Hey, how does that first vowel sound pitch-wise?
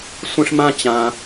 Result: high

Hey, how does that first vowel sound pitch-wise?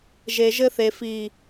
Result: low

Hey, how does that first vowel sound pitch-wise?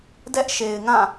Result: high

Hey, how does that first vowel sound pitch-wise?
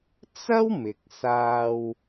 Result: high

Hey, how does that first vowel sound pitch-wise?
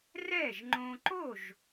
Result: falling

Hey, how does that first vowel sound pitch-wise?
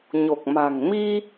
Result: low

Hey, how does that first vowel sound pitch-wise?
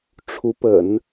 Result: rising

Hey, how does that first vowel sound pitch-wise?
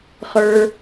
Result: high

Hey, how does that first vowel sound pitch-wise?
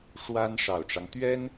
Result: high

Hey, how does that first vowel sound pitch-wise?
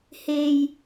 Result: low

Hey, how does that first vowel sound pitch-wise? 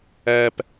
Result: high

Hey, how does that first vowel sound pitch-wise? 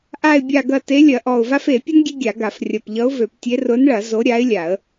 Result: low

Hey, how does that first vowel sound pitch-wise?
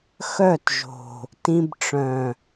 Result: falling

